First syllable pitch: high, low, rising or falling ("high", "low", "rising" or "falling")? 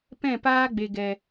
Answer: falling